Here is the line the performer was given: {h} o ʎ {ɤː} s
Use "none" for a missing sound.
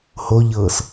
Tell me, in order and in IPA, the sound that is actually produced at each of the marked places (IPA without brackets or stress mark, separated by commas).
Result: h, ɤː